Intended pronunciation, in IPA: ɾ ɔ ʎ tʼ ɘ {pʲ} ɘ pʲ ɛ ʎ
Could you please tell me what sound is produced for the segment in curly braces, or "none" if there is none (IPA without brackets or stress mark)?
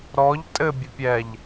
bʲ